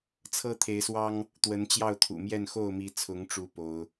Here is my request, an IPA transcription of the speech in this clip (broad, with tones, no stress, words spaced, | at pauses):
t͡sʰɤ˦t̪ʰe˨˦ɪ̯swɑ˦ŋ | t̪wə˨˦nt͡ɕjɑ˥˨ʊ̯t̪ʰṵ˨˩mjɛ˥˨n xo˥˨ʊ̯mi˨˦t͡sʰʊ˨˦ŋ ʈ͡ʂu˦po˨˦ʊ̯